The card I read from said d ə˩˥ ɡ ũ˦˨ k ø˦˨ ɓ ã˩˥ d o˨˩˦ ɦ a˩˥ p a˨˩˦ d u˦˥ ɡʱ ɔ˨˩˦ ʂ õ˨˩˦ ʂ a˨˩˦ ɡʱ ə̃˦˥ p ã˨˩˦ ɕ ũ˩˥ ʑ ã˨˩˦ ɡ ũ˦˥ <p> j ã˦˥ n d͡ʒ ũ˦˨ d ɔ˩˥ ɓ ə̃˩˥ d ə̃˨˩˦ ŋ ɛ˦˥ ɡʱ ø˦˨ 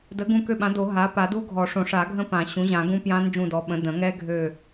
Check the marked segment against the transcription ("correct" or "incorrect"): correct